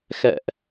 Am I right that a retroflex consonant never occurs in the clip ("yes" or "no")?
yes